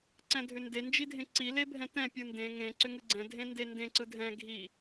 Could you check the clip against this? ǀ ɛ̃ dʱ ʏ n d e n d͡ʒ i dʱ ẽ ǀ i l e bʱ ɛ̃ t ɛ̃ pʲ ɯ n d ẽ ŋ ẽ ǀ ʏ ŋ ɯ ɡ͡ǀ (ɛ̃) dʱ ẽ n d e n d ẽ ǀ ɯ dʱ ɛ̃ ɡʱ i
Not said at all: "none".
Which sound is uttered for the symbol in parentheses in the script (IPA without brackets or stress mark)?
ɛ̃